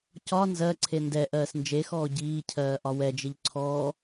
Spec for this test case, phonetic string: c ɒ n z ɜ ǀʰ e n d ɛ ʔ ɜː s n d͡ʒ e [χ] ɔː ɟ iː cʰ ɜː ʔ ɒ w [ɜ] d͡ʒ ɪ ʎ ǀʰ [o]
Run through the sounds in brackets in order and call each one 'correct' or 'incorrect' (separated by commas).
incorrect, incorrect, incorrect